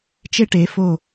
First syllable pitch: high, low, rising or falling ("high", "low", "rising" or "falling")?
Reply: high